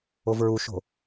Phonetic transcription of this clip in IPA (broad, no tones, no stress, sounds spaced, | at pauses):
o v ɹ u ʃ o̤